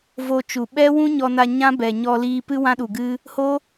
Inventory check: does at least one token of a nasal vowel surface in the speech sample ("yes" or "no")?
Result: yes